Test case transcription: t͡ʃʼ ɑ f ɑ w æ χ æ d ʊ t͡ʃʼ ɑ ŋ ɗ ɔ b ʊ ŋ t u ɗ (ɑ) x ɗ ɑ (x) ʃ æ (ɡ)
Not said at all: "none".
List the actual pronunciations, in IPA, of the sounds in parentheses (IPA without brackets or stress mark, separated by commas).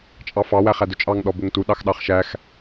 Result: ɑ, χ, x